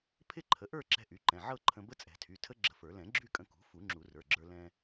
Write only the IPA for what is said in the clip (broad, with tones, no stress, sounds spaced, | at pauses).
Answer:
pʰ ɪ˥˧ ǃʰ ə˩˥ ʔ ə˞˥˧ ǁ ɛ̤˧ ʔ y˩˥ ǃ ɛ̃˩˧˩ ʕ ɤ˥˧ ǃʰ ə̃˧ b ə˦˥ t͡sʼ ɛ̤˨˩˦ tʰ y˩˧˩ tʰ ə˦˥ ɡ͡ǁ ə̤˧ f ə˞˨˩˦ l ɛ̃˨˩˦ ɡ͡ǁ y˥˧ kʼ ə̃˧ k ṳ˩˥ f u˨˩˦ ŋ͡ǁ u˨˩˦ r ə˞˩˧˩ ɡ͡ǁ ə˞˧ l ɛ̃˧